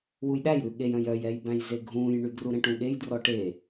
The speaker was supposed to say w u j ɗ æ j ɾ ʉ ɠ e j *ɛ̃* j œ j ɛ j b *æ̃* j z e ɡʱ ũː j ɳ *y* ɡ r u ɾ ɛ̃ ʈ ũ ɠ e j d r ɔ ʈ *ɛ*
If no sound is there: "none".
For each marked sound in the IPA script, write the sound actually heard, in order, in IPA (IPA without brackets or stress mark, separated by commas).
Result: œ̃, æ̃, y, e